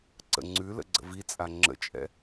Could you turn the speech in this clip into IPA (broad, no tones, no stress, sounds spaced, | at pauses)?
ǀ ə̰ ŋ͡ǀ ʉ l ə̰ ɡ͡ǀ ə̰ v i t͡sʼ a ŋ͡ǁ ə̰ t͡ʃʼ ɛ̰